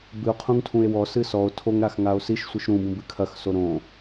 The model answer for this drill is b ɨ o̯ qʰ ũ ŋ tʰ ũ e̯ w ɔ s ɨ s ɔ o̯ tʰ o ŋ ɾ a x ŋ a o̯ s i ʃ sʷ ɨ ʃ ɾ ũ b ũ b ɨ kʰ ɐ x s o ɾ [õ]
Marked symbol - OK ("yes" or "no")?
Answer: yes